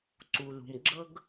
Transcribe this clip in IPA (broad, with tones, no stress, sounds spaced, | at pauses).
ǀ u˨ l ṳ˨ m ɡ͡ǁ ɤ˦ ɡ